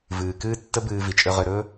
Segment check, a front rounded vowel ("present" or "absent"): present